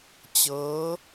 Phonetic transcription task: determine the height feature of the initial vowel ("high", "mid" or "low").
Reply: mid